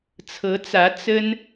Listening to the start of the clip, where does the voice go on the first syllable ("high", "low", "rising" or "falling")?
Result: rising